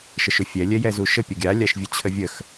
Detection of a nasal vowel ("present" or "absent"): absent